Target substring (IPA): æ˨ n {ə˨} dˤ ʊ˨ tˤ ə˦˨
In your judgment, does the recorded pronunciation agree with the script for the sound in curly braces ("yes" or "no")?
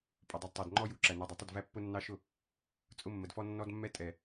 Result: no